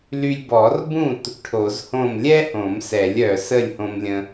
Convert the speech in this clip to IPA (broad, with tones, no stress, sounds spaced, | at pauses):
l y˧ lʲ b ɔ˨˩˦ r b ũ˥˨ t | ʈʰ o˨˩˦ z h õ˥˨ m lʲ ɛ˥ h õ˨˩˦ m s ɛ˨˩˦ lʲ œ˧ s ə˥˨ lʲ h õ˧ m lʲ ə̃˧